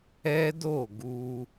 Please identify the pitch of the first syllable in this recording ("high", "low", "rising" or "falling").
high